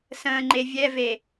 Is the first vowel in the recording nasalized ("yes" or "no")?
yes